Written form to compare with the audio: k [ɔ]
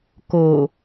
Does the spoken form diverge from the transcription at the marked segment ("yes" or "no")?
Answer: yes